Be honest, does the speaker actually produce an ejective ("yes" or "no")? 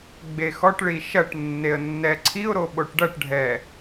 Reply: no